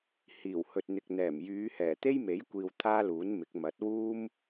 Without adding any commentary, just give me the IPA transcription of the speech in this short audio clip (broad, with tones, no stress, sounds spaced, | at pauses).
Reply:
h iː˨˩ w h ɵ˨ t̚ n̪ ɪ˨ k̚ n̪ ɛː˨˩ m j yː˨˧ h ɛː˨˩ t̪ e˥ j m e˨˥ j kʷ iː˨ w t̪ʰ aː˥ l uː˨˥ n m ɪ˨˥ k̚ m ɐ˨˥ t̚ w uː˥ m